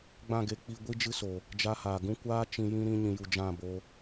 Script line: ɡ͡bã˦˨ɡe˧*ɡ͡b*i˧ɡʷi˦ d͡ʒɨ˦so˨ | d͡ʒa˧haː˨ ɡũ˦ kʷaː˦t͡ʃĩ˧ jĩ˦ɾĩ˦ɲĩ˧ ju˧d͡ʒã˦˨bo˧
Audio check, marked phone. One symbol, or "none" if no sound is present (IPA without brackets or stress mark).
k͡p